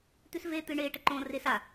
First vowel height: high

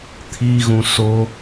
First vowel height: high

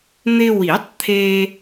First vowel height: high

